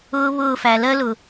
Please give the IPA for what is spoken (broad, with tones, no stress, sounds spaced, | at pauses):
ʊː˦ β ʊː˦˨ f æ˨ l ɜ˦ l ʊ˨